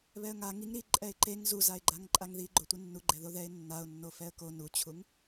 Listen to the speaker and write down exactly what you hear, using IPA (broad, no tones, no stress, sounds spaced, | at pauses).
β ɛ ə̯ ŋ a ŋ i ŋ ɾ i ǃʼ ɛ ɪ̯ ǃ e ŋ z u z a ɪ̯ ɡ͡ǃ a ŋ ǃʼ a ŋ ð i ɡ͡ǃ o tʷ i nː u ɡ͡ǃ ɛ ð o ð ɛ ɪ̯ nː a ʊ̯ nː o f ɛ ə̯ k o n u t͡ɕʰ u ŋ